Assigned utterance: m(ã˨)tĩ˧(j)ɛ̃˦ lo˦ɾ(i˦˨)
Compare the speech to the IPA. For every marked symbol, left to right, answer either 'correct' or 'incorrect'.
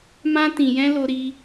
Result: incorrect, correct, incorrect

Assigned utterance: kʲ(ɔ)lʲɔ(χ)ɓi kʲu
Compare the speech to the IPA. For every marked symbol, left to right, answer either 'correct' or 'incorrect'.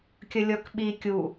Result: incorrect, incorrect

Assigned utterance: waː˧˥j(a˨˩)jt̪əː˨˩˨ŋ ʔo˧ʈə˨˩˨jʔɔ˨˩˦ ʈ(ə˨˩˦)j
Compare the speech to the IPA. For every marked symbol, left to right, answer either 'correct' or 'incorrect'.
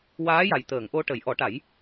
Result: correct, incorrect

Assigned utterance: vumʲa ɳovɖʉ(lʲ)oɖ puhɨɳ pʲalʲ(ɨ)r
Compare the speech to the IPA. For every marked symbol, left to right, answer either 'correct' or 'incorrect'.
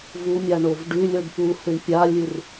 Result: correct, correct

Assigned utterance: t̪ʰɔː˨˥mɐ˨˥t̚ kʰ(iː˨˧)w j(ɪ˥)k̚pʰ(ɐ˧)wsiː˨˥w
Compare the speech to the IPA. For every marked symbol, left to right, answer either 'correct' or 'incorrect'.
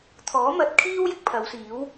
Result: incorrect, correct, incorrect

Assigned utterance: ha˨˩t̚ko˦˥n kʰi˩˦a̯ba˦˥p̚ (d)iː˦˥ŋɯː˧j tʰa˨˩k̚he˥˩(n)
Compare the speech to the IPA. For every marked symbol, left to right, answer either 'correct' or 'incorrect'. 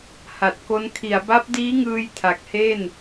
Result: correct, correct

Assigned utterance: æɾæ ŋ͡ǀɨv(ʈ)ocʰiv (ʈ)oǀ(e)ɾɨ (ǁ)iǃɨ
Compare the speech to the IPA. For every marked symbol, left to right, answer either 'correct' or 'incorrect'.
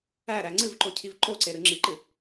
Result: incorrect, incorrect, correct, incorrect

